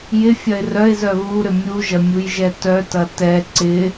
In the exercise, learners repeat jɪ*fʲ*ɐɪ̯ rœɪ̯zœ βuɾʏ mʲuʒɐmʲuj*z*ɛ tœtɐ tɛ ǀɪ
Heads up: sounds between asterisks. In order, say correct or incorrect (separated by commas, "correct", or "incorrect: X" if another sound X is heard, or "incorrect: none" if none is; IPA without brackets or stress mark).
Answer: correct, incorrect: ʒ